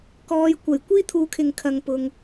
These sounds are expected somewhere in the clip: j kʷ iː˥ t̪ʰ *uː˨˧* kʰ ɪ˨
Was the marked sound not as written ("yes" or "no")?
no